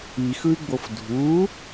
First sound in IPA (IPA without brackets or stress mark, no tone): i